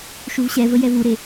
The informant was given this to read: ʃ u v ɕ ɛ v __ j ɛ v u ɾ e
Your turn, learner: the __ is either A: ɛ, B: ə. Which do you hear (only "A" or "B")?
B